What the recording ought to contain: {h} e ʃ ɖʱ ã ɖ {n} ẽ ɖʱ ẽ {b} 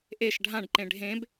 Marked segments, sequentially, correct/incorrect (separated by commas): incorrect, incorrect, correct